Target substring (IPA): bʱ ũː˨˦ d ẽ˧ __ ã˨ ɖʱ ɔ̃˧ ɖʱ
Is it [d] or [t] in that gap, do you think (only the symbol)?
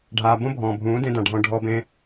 d